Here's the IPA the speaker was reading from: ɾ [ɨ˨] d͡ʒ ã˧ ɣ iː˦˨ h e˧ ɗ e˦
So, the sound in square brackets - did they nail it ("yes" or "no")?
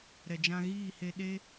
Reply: no